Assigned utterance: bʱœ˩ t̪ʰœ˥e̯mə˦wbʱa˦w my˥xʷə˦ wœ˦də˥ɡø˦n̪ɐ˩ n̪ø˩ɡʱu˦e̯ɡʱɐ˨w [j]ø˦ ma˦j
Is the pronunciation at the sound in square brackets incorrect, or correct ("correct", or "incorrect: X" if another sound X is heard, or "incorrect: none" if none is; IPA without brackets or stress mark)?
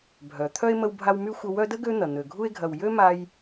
correct